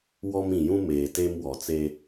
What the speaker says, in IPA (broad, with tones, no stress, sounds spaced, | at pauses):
w ɔ˦ m ĩ˨ j ũ˦ m eː˨ t e˦ m w ɔ˨ t͡s e˦